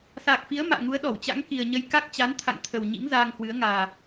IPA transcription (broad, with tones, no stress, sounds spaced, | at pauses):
s aː˨˩ k̚ f i˨˦ ə̯ m a̰ː˧˨ ŋ u˨˦ ə̯ ɗ ɔ˧˩ w t͡ɕ a̰˧˥ ŋ k i˨˩ ə̯ ɲ ə˧ j k a˦˥ k̚ t͡ɕ a˨˦ n t̪ʰ a̰˧˨ ŋ t̪ʰ ə˨˩ w ɲ ḭ˧˥ ŋ z aː˧ ŋ h w ɨ˨˦ ə̯ ŋ aː˨˩